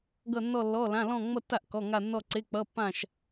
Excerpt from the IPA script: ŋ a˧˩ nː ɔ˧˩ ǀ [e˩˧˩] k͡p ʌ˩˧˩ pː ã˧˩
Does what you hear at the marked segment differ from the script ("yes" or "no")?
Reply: no